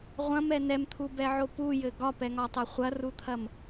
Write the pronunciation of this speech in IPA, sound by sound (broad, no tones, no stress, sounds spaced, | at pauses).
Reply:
ʁʷ ɐ̃ m ɛ n ɛ m t̪ʰ u b ɛ ʕ o p u j ɘ ɡ ɒ p ɛ ŋ ɒ tˤ ɛ χʷ ɐ r u t̪ʰ ɐ m